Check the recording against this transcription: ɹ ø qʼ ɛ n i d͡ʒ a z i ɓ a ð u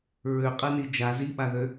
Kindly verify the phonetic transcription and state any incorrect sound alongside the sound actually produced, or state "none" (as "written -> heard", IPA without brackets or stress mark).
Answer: u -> ø